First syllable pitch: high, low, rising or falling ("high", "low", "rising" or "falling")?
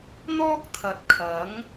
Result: high